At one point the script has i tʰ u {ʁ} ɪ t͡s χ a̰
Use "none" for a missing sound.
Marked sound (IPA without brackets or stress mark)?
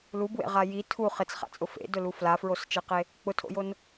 χ